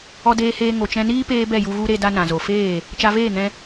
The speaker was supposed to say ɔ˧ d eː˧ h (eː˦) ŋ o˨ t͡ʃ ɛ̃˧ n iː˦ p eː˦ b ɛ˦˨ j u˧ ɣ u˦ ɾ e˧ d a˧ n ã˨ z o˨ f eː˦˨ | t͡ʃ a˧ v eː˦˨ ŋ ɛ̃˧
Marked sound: incorrect: eː˧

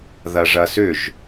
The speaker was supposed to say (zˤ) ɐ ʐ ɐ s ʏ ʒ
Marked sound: incorrect: ð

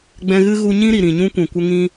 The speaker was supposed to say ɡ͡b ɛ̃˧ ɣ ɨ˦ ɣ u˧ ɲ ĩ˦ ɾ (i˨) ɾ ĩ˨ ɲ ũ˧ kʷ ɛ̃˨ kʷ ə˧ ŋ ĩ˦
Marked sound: correct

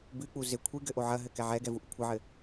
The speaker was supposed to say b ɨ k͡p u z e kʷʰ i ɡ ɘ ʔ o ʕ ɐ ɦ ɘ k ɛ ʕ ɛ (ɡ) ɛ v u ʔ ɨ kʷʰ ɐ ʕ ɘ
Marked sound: correct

